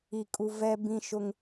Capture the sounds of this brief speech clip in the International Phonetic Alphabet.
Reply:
i˨ kʼ u˨ v ɛ˦ b ĩ˦ ʃ ʊ˦ ŋ

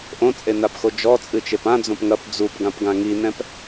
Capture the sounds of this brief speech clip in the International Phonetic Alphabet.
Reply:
ʔ õ t͡sʼ e n a p x o d͡ʒ ɔ t͡sʼ ɨ t͡ʃ e p ã d͡z õ p ŋ ɐ p d͡z u p ɡ ã p ɡ ã ŋ i n ɛ̃ p

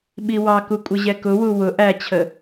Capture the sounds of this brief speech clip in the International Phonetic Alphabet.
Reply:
ɓ i w ɑ k u kʷʼ ɪ ʑ ɛ k ʊ w u w ʊ ʔ æ t͡ɕʰ ə

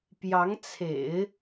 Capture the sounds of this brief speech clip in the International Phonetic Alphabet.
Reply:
p j ɑ˧˥ ŋ t͡sʰ ḛ˨˩˦ ɪ̯

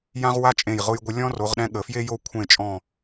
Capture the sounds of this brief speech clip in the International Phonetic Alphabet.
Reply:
j ã˥ ʁ w a˥ t͡ʃʼ ẽ˧˩ j ʁ ʊ˧ j ɡʷ ə˧ lʲ ɔ̃˥ r o˩˧ ʁ ɗ ɛ̃˧ ɠ ə˩˧ f j e˥ j o˥˧ kʷʰ ẽ˧˩ t͡ʃʼ ɔ̃˧˩

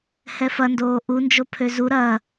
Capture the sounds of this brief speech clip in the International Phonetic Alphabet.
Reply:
h ɛ f ɐ n d oː ʔ u n d͡ʒ o pʰ ø z u ɾ ɐ

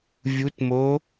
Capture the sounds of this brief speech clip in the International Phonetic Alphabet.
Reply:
vʲ u t m o

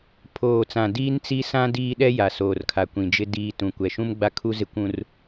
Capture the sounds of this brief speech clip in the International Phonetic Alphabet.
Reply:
pʰ oː˨ t͡s ã˨ d iː˦ n t͡s i˦ s ã˦ d iː˦ ɗ ɛ˦ j a˨ s oː˨ r kʰ a˨ kʷ ĩ˨ d͡ʒ ɪ˦ d iː˦ t ũ˨ kʷ ɛ˨ ʃ ũ˦ m ɡ͡b a˦ kʰ u˦ z ɪ˦ kʷ ũ˦ r

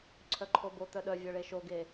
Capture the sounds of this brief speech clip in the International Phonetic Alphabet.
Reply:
ǀʰ œ ǃʰ o b o t̪ œ ɗ œ vʲ œ ɭ e ʃ o ɡ e

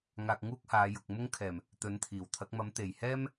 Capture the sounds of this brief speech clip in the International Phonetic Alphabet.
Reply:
ŋ aː˧ k̚ ŋ uː˥ k̚ h aː˨˧ j ʊ˨ k̚ m ʊ˥ ŋ kʰ ɛː˨˩ m | t̪ ɵ˨˥ n t̪ʰ iː˨˩ w t̪ʰ ɐ˨˥ k̚ m ɐ˨˥ m t̪ e˨˩ j h ɛː˥ m

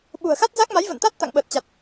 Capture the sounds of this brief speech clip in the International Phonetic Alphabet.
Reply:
ɓ ṳ˨˩ ə̯ x a˦˥ t̚ z a˦˥ k̚ m a˨˦ j v ə̰˧˨ n t̪ a˦˥ t̚ t̪ a̰˧˨ ŋ ɓ əː˨˩ t̚ t͡ɕ a˨˩ t̚

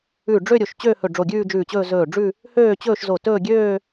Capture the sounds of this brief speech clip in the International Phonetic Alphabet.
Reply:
ʉ˧˩ ɖ͡ʐ ø˥˧ ɾʲ o˧˩ ʃ t͡ɕ ø˥˧ h ɵ˧˩ ɖ͡ʐ o˧˩ ɡʲ ʉː˥˧ d͡ʒ ʉː˧˩ t͡ɕ ɵː˥˧ z ɵː˧˩ ɖ͡ʐ ʉ˥˧ | h øː˥˧ t͡ɕ ɵː˥˧ ʃ z o˧˩ t ɵː˥˧ ɡʲ øː˥˧

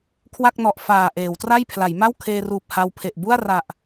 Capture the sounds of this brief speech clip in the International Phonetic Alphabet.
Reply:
kʰ w a˥˩ k̚ n ɔ˨˩ ʔ f aː˨˩ ʔ eː˩˦ w t r a˥˩ j pʰ l a˩˦ j m a˥˩ w kʰ eː˧ r uː˨˩ p̚ h a˧ w pʰ e˨˩ ʔ b u˥˩ a̯ r a˨˩ ʔ

